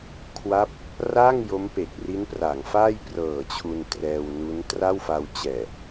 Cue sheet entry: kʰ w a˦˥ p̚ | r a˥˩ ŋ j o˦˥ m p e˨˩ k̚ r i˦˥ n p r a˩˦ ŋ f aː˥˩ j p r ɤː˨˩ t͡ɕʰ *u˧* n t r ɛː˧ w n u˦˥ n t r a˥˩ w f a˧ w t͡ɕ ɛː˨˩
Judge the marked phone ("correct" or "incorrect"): correct